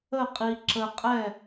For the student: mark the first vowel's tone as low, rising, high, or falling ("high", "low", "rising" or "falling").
falling